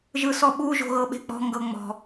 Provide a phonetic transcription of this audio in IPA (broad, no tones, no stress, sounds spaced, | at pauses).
ʒ ɯ s ɔ ɓ u ʒ o̤ ɣ ɤ ɓ e̤ k͡p ɔ̤ ŋ ɡ ɤ ŋ͡m ɔ̤